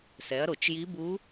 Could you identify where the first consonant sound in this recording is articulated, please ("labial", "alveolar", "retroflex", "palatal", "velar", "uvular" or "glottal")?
alveolar